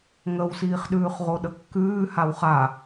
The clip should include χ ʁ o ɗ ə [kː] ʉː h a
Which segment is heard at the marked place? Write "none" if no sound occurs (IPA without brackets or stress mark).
kː